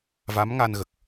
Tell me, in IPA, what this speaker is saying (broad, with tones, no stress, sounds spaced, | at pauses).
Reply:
v a˧˥ m ŋ a˧ n ɣ ə˨˩ k̚